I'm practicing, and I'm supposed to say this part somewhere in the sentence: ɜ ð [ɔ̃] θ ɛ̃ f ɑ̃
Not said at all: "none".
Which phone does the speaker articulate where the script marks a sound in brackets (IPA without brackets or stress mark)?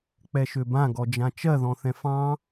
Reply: ɔ̃